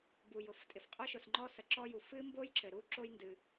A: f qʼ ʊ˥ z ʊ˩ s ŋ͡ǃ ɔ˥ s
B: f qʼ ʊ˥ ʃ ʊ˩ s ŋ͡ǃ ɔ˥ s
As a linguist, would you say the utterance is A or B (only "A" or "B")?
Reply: B